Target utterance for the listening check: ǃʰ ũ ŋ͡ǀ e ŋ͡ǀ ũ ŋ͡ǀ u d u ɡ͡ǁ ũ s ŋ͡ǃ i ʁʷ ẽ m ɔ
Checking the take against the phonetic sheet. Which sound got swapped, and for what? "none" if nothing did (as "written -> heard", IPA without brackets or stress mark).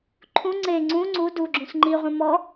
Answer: none